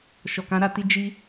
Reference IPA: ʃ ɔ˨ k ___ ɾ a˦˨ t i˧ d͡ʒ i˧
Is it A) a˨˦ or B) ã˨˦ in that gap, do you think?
B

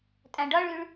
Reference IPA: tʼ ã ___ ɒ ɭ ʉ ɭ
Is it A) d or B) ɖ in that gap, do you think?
B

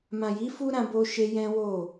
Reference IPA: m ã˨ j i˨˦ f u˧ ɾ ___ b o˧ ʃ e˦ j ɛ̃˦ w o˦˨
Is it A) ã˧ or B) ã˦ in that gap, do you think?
A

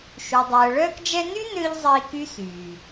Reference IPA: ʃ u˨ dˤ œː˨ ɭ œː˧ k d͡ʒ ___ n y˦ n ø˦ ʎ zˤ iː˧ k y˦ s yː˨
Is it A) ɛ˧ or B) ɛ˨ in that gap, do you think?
A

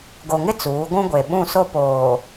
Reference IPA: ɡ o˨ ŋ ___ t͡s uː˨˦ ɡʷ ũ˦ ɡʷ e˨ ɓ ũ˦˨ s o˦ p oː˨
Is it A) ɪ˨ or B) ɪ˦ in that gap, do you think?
B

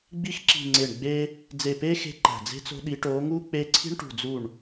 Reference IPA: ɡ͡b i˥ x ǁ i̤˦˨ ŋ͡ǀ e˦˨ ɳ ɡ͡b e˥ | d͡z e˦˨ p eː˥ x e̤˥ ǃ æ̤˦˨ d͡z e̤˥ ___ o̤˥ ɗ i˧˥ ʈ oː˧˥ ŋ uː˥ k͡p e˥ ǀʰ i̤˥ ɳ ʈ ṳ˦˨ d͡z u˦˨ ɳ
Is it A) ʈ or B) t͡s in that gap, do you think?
B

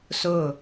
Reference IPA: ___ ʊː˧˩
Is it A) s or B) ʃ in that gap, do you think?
A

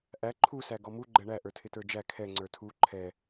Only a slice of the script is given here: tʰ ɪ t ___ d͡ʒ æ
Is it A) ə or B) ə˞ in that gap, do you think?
B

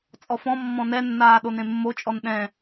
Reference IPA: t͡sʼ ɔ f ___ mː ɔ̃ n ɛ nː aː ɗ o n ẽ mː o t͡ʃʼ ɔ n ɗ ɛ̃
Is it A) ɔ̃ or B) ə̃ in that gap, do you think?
A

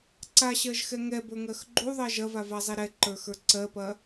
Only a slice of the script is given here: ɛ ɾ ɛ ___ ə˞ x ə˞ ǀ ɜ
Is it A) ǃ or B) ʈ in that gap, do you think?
A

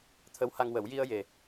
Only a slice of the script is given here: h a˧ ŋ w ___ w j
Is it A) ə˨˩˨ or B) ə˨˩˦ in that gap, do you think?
B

